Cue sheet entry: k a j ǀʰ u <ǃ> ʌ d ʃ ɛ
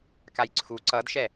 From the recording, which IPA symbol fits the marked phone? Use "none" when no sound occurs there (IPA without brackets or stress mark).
ǀ